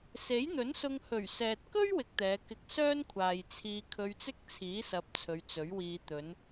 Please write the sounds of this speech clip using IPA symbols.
s e˨˥ j n̪ ɵ˨˥ n s ʊ˧ ŋ h ɵ˨˩ ɥ s ɛː˨ t̚ k ɵ˥ ɥ w ɪ˧ k̚ t̪ ɛː˨˧ k ɪ˧ k̚ s œː˥ n kʷʰ aː˨ j t͡sʰ iː˧ kʰ ɵ˧ ɥ t͡s ɪ˥ k̚ t͡sʰ iː˨˥ s ɐ˨˥ p̚ t͡sʰ ɵ˨˧ ɥ t͡s ɵ˨˥ ɥ w iː˧ t̪ ɵ˨˧ n

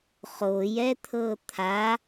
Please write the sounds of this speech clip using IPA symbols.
χ o j ɛ t̪ʰ ɤ t̪ʰ a

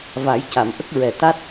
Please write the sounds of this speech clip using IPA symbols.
v a˨˩˦ j c a˨˩˨ m ʔ ə˦˥ k̚ ɹ ɛ˨˩ t̪ a˦˥ t̚

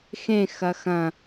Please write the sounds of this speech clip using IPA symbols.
x ẽ x ɐ x ɐ̃

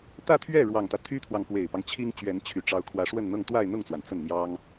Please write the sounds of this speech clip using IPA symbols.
t̪ ä˥˧ t̪ʰ ɥ ɛ˥˩ ɻ w ɑ˨˩ ŋ t̪ ä˦ t̪ʰ y˥ t̪ʰ w ɑ˨ ŋ p w e˨˩ ɪ̯ p ɑ˦ ŋ t͡ɕʰ i˥ ŋ t͡ɕ ɥ ɛ˧˥ n t͡ɕʰ y˨˩ ʈ͡ʂ ɑ˧˥ ʊ̯ kʰ w ä˧˥ ʂ w ə˥˧ n n̪ ɤ˥˧ ŋ t̪ w a˥˧ ɪ̯ n̪ ʊ˥˩ ŋ t͡s w a˩ n t͡s ə˥˩ n n̪ j ɑ˥ ŋ

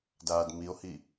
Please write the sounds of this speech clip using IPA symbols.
d aː d m i o̯ h i

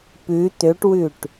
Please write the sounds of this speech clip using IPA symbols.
p ʉ t̪ ø ʈ w ʉ ʈ

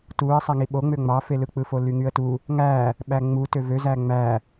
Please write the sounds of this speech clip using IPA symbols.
t u ə̯ sˤ æ ŋ i ɓ o ŋ͡m ø ŋ͡m ɑ f e l ɯ k͡p ɯ f o l y ŋ y ə̯ t u | ŋ æ | ɓ æ ŋ͡m u t ø v ø z æ ŋ͡m æ

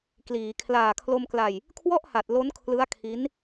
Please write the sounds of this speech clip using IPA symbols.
k l iː˩˦ kʰ l aː˨˩ kʰ l o˧ m k l a˧ j | kʰ w ɔ˥˩ ʔ h a˨˩ t̚ l o˦˥ n kʰ l ɯ˦˥ a̯ kʰ i˦˥ n

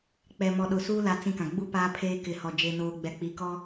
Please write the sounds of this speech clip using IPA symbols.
k͡p ɛ˨ m ɔ˨ ɗ ʊ˨ s uː˦ l a˦ t͡s ĩ˦ k ã˨ ɡ͡b u˦ p aː˦ pʰ eː˦ k ɪ˨ h ɔ˨ d͡ʒ e˦ n oː˦ ɡ͡b ɛ˦ k͡p i˨ k ɔ˦

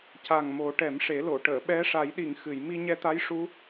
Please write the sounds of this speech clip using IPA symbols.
c a˨˩ ŋ m o˨˩˦ ʈ ɛ˨˩˦ m ʂ e˨˩˦ l o˨˩˨ ʈ əː˨˩˨ ɓ ɛ˧˥ ʂ a˨˩˦ j ɗ i˨˩˨ ŋ x ɨ˨˩˨ j m i˧ ɲ ɛ˧ t̪ a˧˥ j ʂ u˧˥

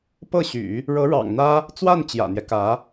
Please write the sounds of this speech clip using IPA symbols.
p ɤ˥˩ ɕ y̰˨˩˦ | ɻ ɤ˧˥ ɻ ɑ̰˨˩ ŋ n̪ ä˥ | t͡s w a˥˩ n t͡ɕ j ä̰˨˩ n̪ j ɛ˦ k ä˧˥

